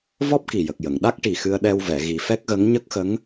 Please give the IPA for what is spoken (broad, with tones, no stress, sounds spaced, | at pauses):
v ɔ˦˥ p̚ k i˨˩ j ə˨˩ k̚ j ə˨˩˨ ŋ ɗ a˦˥ k̚ ʈ i˨˩ x ɨ˧ ə̯ ɗ ɛ˧ w v ɛ˨˩˨ ɣ i˨˩˦ f ɛ˦˥ k̚ ɣ ə˧˥ ŋ ɲ ə˦˥ k̚ x ə˧˥ ŋ